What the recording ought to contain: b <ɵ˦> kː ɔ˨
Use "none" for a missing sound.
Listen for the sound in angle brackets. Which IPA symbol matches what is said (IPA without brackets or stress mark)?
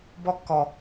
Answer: ɔ˦